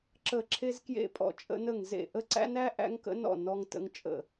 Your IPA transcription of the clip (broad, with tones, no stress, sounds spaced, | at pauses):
ǁ ə˥˧ ǁʰ e˥ z k j ḛ˥ pʼ ɔ̰˥˧ t͡ʃʼ ə̰˥ n ə˥˧ ŋ z ḛ˥˧ ʔ ə˥ ǀ æ̰˥ n æ˥ ʔ æ̰˥ ŋ k ə̰˥ n ɔ̰˥˧ n ɔ˥ ŋ t ə̰˥ ŋ t͡ʃʼ ə̰˥˧